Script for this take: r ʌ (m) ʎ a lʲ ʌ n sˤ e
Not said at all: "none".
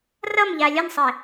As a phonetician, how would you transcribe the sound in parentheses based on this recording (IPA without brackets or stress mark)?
m